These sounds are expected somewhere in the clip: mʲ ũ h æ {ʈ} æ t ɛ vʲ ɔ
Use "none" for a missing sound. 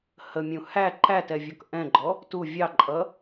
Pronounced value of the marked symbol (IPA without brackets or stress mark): ǃ